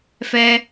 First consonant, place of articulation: labial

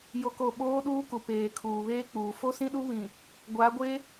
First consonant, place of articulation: palatal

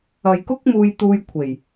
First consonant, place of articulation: palatal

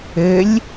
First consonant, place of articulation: alveolar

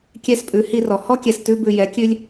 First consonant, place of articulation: velar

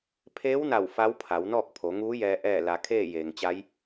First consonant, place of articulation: labial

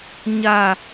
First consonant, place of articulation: palatal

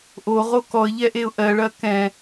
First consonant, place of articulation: glottal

